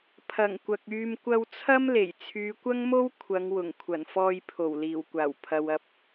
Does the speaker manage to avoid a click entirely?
yes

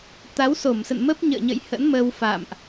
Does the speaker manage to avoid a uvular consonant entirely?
yes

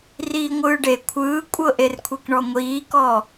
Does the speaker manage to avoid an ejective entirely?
no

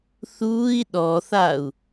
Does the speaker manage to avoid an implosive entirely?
no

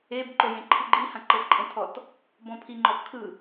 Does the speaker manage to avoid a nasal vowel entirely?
no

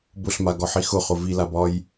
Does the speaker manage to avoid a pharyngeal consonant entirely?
no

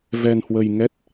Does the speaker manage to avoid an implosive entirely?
yes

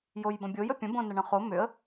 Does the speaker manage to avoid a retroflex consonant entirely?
no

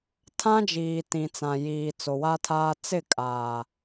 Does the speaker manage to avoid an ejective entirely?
no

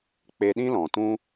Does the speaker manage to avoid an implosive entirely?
no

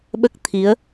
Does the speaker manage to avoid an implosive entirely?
no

